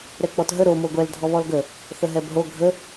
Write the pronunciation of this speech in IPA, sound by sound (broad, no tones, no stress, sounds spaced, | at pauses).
ɾ ɛ k͡p ɔ t ɦ ə ɾ o m o ɡʷ ɛ l dʱ ɔ β ɔ l ɡ ə | θ ə ɦ ɛ b ɦ o ɡʱ ə